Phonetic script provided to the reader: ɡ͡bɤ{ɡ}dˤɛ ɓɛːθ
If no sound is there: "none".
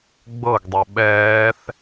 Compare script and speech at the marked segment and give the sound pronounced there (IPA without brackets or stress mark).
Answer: ɡ